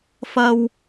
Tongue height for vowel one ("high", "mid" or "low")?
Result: low